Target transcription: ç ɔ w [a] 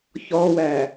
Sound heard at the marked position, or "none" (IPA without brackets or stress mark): æ